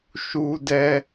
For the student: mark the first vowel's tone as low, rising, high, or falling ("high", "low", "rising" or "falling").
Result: high